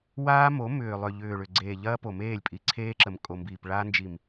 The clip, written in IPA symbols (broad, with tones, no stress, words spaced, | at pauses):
waː˦mo˨˦ mʏː˨lˠʏ˨ ʎʏː˨ɭʏ˨ɡ͡ǀeː˨ ʎɐː˦po˨meː˦˨lʲ pʼi˨ǀʰeː˦ǁə˨m kʼo˨mbiː˨pɭaː˦ nd͡ʒi˨m